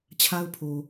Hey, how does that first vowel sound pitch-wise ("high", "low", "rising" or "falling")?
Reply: high